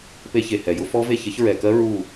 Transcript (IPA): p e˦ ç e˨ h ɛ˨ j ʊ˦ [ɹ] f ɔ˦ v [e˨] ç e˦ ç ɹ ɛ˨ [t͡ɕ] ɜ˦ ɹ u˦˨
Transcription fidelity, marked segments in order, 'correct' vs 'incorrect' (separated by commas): incorrect, incorrect, incorrect